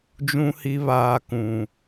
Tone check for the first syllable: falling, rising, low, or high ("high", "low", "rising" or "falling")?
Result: high